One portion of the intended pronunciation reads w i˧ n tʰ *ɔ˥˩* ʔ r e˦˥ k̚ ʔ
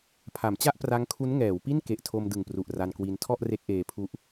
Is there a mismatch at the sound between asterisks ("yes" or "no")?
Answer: no